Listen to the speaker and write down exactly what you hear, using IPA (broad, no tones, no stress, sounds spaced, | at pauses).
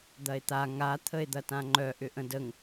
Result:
d̪ ɐ e̯ t̪ a ŋ a t̪ʰ ə e̯ d̪ ɐ t ã ŋ͡ǃ œ ʔ ʏ ʔ ə̃ d ə ŋ